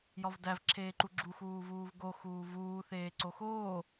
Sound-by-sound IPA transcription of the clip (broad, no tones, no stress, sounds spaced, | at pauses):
j ɒ v d æ v ǁʰ eː ǃ u ɡ͡ǁ u x uː v uː v ɡ o x uː v uː θ eː ǀ o x oː